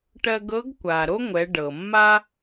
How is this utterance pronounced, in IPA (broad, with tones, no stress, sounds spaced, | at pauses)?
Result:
ʈ ɜ˧ ɡ ɤ˧˥ ɡ kʷ a˩ ɾ o˥ ŋʷ ɛ˩˧ ɖ ɤ˩ mː a˥